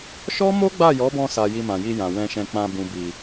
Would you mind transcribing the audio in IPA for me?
ʃ ɔ˦ m o˦ ɡ͡b a˦˨ j ɔ˨˦ b ɔ̃˧ s a˨ j i˧ m ã˨ j i˧ j ã˨ w ɛ̃˧ ʃ ɛ̃˧ k͡p ã˧ b ũ˨ b i˨

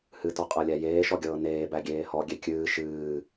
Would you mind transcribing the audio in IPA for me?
h ɨ t ɔ qʼ ɤ lʲ æ j eː ʃ ɔ ɡʲ ɤː n eː b æ ɡʲ eː h ɔ ɡʲ e kʲ ɨː ʃ ɨː

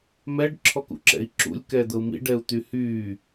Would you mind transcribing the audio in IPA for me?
m ɛ ɖ ǁʰ ɔ k ṵ ǁ ɛ̰ i̯ ǁ ṵ lʲ k ɛː d̪ ɤ u̯ m ḭ ɖ ɛ u̯ t̪ y h yː

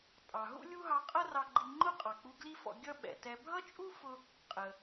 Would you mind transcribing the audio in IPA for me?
tʼ ɑ˩ ɦ ṵ˥ lʲ u˥ ɦ ɑ˧ qʼ ʌ˥ r ɑ˧ ɡ͡ǃ i˧ ŋ͡ǃ ʊ˥ qʼ ɑ˩ k͡p u˧ ɡ l i˥ f ɔ̰˧ ɡʲ ʌ˥ ɓ ɛ̰˩ t ɛ˧ bʱ ʌ˥ t͡ʃʼ u˥ f ʊ˧ | qʼ ə˩

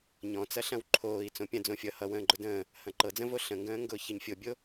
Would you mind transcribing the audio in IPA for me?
ɲ ɔ̃ t͡s ɐ ɬ ɐ̃ w ǃʰ oː i̯ t͡s õ pʲ ɐ̃ d͡z õ fʲ ʌ h ʌ w ə̃ː ɡ͡ǃ ʊ d ə̃ː | h ɐ̃ ǃ ɤ d͡z ə̃ v o ɬ ə̃ ŋ ɡ ə̃ː ŋ ɡ ʊː ç ə ɲ fʲ o bʲ o

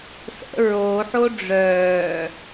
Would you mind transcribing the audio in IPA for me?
s ə̰ ɹ o ħ o ɖ͡ʐ œː

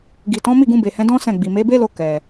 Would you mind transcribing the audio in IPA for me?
ɡ i˨ t ɔ̃˨˦ m i˦˨ ɡ ũ˧ b e˨ h ɛ̃˨˦ d ɔ̃˦ s ɛ̃˦˨ ɡ͡b i˨ m e˨˦ b e˦ l o˧ k ɛ˨

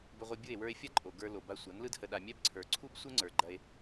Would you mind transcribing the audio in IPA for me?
b ə˧ ʁʷ ɯ˧ bʲ ɯ˦˨ e̯ w ə˞˧ e̯ fʲ ɐ˦ ǃʼ o˨ ɡ ə˞˧ l o˨ b a˧ sʷ a˨˦ n l ɯ˦ d h ə˧ ɗ a˧ mʲ ɛ˦ b ǀʰ ə˞˨ ǀʰ u˦ b sʷ ɘ˦ ŋ͡ǀ ə˞˨ ɡ͡ǃ ɐ˧ e̯

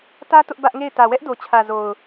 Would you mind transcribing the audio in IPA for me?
t ä˦ t ʊ˦ ʔ b ä˦ ʔ ŋ e˦˨ ɪ̯ t ä˨ w ɛ˦ ʔ d o˨ t͡ɕʰ ä˨ z o˨ ʊ̯

